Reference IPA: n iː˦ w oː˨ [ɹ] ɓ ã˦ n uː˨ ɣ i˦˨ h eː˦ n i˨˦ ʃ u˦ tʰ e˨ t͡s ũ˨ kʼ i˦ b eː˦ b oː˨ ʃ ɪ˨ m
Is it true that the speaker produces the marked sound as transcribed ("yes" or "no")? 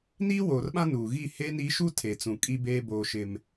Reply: no